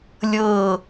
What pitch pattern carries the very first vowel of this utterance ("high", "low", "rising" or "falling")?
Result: falling